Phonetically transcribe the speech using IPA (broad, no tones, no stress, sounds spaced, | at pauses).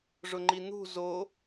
ʐ ʊ ŋ͡ǃ i n̪ ṳ z o